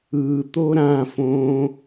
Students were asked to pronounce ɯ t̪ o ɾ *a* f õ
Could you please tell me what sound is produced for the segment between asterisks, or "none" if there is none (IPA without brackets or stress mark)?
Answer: ã